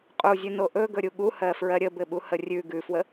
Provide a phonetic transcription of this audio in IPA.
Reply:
qʼ u zʲ ʉ n o ʔ ɵ ɡ ɵ ɾʲ u ɠ u h ɜ f ɹ ɜ ɾʲ ə b ɘ ɓ u h ə rʲ ʉ ɡ ʉ f w ə

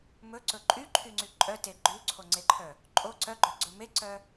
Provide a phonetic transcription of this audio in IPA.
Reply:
m ɵ ǀ ɵ ǃʼ y ǃʰ y ŋ͡ǀ y ǃʼ œ t e ɡ͡ǃ ʉ ǀʰ o ŋ͡ǀ e ǃʰ œ | ǃʼ o ǀ œ ɡ͡ǃ œ ɡ͡ǀ ɵ m e ǀ œ

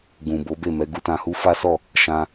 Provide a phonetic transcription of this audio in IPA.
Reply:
ɡ ũ˨ b o˨˦ b e˦˨ m ɛ˨˦ ɡ u˦ t ã˧ h u˦ f a˦ s ɔ˦˨ | ʃ ã˧

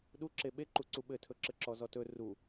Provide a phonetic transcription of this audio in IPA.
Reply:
ɗ u ǁ e ɓ e ǃ u ǀ u ɓ ɘ tʰ ɵ ǁ ɘ ǁ ɔ z ɔ t ɵ r u

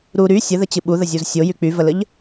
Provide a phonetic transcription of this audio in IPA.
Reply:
ɾ u ɾ y sʲ ə ð ə t͡ɕ ɨ ɓ u ð ə zʲ u z sʲ o j y k͡p y v ə l ə ʎ

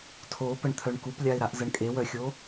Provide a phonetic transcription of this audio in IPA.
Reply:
tʰ o p ə ɳ t̪ʰ œ ɳ k u p lʲ a ɪ̯ ɾ a ʔ z ə ɳ kʼ e w œ xʲ o

